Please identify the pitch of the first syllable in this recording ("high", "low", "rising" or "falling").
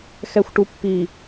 low